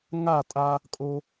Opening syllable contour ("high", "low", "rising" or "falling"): falling